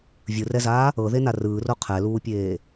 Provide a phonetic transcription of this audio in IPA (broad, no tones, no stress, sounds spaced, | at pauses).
vʲ ɯ r ɛ z aː | ɤ ð e n a r ɯː r o qʰ ɛ l uː pʲ eː